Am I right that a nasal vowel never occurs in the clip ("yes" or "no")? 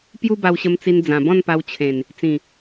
no